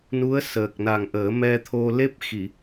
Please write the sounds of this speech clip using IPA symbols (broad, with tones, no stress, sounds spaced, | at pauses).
n u˧˥ ə̯ s əː˨˩ k̚ n a˨˩ ŋ ʔ əː˨˩˦ m ɛ˧ t̪ʰ o˧ l e˦˥ p̚ x i˨˩˨